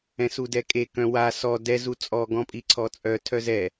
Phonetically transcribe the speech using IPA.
ɛ̃ s u d ɛ kʼ e k œ̃ w a s ɔ d ɛ z u t͡sʼ ɔ ɡ ɔ̃ pʼ i ǀʰ ɔ t͡sʼ œ tʰ œ z ɛ

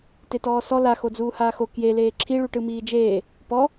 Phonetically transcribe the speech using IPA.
t e t ɔː s ɔ l a x o d͡z uː h aː x o k j e l eː ǁʰ i ɭ u ʈ ɯ m iː d͡ʒ eː | p ɔ

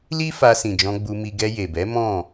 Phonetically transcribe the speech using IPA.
l i˦ f a˧ s ĩ˨ d͡ʒ ɔ̃˧ ɡ͡b u˧ m i˧ ɡ ɛ˧ j e˨ b ɛ˨˦ m ɔ̃˦˨

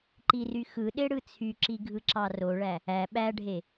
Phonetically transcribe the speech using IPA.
ǃ i r y x ɯ ɗ e ɽ ɯ t͡sʰ y ǁ i ɡʱ ɯ ǁ ɑ r o ɭ æ | æ ɓ æ ɖʱ e

